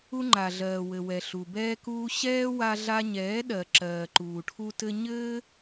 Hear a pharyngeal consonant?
no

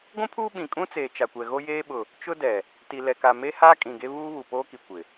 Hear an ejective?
yes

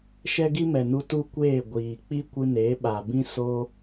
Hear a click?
no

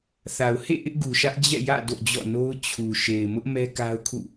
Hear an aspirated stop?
yes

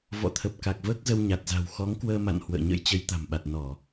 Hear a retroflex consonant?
no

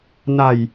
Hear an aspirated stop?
no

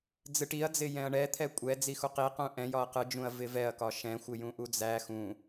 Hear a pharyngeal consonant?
no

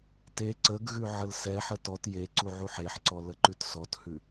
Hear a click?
yes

